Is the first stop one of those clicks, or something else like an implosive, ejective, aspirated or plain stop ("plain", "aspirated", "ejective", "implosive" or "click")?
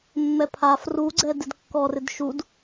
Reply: aspirated